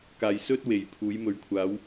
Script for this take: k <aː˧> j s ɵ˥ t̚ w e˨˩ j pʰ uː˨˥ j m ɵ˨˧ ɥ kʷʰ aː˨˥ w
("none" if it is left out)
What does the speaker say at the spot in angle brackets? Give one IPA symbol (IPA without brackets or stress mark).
aː˨